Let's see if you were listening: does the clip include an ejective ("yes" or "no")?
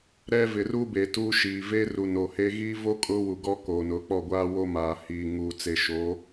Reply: yes